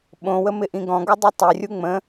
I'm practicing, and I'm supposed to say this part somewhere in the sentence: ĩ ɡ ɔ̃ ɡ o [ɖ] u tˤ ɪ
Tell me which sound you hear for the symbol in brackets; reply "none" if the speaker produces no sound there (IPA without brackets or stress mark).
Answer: dˤ